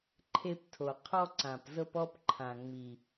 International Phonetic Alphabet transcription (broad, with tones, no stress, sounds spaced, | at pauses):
ǃʰ e˦ p tʰ o˨ qʰ ɔ˦ ǀ ã˨ p z ɤ˦ p ɔ˦ p ǃʰ ã˨ ŋ͡m i˨